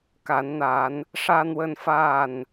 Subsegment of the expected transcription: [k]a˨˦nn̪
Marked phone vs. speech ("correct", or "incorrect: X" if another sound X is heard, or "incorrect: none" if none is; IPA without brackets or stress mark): correct